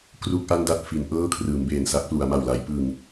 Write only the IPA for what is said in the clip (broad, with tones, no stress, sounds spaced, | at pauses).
k r u˥˩ k̚ ʔ a˥˩ n d a˥˩ t̚ f i˩˦ n ʔ ɤː˥˩ kʰ r ɯː˩˦ m b eː˨˩ n s a˦˥ k̚ p l u˩˦ a̯ m a˨˩ w l a˩˦ j p ɯ˨˩ ŋ